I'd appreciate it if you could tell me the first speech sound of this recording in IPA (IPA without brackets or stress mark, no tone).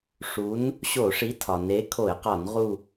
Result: ʂ